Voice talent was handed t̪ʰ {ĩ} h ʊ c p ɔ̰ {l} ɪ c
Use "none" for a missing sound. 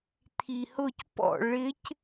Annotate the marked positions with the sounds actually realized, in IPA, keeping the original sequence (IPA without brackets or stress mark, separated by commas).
i, ɭ